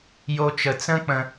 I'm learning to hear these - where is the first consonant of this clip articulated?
palate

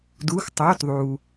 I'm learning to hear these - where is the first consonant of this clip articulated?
tongue tip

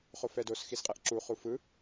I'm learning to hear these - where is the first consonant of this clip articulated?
uvula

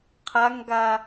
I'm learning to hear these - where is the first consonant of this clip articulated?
uvula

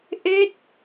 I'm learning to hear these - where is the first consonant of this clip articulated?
throat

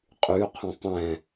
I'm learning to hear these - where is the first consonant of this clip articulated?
uvula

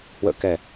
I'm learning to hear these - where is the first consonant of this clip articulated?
throat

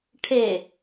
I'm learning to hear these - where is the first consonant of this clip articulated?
retroflex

